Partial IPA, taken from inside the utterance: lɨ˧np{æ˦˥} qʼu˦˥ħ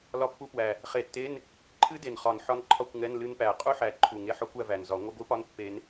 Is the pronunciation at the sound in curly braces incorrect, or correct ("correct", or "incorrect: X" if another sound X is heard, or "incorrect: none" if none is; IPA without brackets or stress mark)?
incorrect: æ˨˩